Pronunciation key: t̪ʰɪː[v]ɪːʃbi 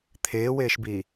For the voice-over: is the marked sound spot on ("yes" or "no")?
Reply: no